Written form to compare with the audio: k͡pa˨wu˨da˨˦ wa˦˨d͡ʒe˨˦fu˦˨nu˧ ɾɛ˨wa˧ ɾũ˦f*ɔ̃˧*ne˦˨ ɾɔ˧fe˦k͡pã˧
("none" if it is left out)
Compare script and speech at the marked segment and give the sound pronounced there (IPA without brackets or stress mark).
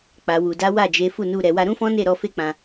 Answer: ɔ̃˦